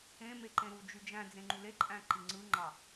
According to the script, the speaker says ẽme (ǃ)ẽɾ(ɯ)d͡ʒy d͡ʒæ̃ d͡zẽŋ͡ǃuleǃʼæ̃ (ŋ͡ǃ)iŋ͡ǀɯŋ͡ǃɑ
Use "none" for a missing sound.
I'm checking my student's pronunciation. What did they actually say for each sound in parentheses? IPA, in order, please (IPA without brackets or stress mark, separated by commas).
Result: ǃ, u, ǃ